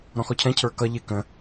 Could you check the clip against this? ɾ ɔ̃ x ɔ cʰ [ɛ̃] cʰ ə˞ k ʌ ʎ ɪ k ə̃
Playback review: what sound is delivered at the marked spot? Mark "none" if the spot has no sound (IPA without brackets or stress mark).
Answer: ɛ̃